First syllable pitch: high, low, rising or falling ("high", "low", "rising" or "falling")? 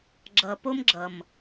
low